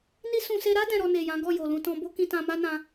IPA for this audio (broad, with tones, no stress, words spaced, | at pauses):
ni˧ sũ˨se˧ ɾa˦ dɛ̃˧ɾɔ˧ne˨jã˨˦ ɡɔ˦˨jo˨lũ˧tɔ̃˧ bo˦kĩ˧tã˧ ma˦nã˧